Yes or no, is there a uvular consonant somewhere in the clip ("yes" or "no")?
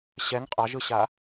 yes